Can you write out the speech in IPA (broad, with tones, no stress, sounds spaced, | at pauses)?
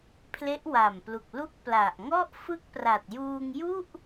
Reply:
pʰ l e˦˥ ʔ w a˨˩ m p l u˨˩ k̚ l u˥˩ k̚ p l a˨˩ ʔ ŋ ɔ˥˩ ʔ f ɯ˥˩ k̚ p r a˨˩ t̚ j uː˧ ŋ j u˥˩ ʔ